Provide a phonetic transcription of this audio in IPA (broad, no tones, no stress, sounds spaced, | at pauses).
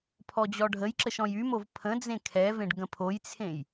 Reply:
pʰ ɔ d͡ʑ ɔ ɖʱ ə j ǁ ə ʃ ɔ̃ j y m o v pʰ ə̃ d͡z ẽ kʰ ɛ v ẽ ɖ ɡ ə̃ pʰ o j t͡sʰ ẽ j